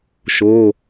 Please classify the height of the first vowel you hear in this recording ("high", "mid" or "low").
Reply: mid